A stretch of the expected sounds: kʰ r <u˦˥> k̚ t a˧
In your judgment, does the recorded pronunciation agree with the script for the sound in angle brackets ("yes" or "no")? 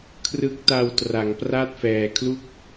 no